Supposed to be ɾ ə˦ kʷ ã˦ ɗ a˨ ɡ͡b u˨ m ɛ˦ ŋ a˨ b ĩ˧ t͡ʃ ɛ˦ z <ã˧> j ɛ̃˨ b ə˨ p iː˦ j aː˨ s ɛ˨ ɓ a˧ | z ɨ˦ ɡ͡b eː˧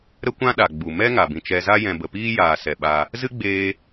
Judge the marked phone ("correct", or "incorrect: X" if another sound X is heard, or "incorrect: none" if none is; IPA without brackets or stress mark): incorrect: a˧